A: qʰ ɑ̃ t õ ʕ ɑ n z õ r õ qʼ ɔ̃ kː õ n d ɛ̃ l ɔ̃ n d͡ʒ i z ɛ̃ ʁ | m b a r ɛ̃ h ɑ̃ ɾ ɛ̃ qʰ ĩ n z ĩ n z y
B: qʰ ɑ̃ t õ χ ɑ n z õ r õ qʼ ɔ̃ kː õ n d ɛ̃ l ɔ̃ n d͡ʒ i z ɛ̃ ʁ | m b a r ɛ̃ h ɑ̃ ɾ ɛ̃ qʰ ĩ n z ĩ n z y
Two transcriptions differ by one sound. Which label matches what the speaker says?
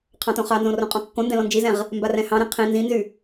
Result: B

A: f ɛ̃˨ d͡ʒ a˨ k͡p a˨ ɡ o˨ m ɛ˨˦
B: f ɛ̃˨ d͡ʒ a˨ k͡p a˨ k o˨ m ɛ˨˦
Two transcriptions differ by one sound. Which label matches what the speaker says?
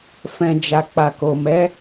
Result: B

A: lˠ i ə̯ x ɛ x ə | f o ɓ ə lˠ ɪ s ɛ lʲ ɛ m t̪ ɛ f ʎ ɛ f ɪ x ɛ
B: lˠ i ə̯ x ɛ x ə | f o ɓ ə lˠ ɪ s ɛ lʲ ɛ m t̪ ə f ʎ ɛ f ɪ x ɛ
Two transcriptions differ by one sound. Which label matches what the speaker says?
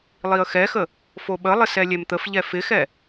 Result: B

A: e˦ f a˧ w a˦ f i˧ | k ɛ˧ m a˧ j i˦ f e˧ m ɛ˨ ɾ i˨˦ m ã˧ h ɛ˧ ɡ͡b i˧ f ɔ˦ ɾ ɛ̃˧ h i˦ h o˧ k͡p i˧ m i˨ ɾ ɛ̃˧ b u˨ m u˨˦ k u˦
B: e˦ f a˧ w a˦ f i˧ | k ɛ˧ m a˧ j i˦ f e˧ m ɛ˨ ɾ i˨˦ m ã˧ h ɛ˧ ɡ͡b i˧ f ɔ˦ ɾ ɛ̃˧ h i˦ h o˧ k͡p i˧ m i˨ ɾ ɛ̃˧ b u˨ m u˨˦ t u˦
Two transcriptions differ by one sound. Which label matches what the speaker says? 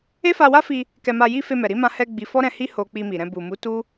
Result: B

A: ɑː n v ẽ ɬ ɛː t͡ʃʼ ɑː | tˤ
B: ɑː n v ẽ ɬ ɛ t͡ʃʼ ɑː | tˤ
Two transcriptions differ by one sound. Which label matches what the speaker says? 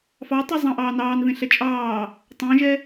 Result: B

